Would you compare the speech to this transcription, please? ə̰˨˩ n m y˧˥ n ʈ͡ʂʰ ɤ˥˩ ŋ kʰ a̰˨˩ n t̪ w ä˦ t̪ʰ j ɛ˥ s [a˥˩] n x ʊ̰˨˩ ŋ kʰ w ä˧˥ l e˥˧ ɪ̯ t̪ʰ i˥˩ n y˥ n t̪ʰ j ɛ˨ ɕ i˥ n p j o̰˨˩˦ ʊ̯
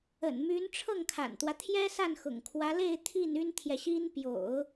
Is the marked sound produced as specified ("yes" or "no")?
yes